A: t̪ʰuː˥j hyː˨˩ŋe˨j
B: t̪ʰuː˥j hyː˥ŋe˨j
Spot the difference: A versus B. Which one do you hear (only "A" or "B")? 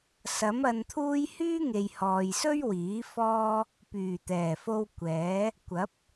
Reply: B